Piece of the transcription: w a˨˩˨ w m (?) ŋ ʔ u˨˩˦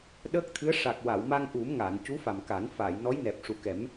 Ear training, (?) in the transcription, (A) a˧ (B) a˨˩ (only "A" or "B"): A